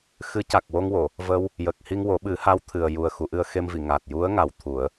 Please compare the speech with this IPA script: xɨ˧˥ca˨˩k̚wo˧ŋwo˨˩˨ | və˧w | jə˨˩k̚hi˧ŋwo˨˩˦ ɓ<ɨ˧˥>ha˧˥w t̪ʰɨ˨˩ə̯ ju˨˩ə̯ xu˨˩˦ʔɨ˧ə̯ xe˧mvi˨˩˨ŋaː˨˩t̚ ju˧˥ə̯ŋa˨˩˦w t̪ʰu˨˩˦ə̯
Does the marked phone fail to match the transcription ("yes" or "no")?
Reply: yes